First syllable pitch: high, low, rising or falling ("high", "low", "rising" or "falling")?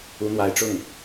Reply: rising